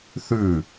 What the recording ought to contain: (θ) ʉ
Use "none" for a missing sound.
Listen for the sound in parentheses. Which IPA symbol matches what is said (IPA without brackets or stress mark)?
θ